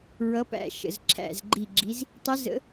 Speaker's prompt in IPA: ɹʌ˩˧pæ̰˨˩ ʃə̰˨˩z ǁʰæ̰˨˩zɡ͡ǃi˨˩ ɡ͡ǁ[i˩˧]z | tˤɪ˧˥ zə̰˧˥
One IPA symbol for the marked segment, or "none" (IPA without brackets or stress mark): i˩˧